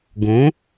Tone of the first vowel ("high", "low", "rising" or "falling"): rising